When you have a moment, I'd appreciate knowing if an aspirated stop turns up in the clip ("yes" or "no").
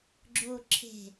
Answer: yes